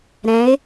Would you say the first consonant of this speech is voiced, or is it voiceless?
voiced